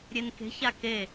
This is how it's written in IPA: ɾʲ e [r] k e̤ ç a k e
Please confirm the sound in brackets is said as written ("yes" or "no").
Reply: no